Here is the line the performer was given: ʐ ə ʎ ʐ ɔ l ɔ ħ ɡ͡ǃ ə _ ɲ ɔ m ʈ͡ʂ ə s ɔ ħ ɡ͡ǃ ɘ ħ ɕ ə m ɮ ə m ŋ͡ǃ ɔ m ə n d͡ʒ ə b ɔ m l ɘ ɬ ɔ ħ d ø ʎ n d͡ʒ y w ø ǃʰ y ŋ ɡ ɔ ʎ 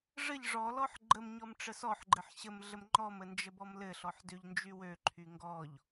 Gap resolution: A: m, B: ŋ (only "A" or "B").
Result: A